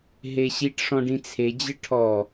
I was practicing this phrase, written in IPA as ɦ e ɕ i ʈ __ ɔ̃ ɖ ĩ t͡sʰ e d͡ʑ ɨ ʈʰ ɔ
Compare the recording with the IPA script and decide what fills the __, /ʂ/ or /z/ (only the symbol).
ʂ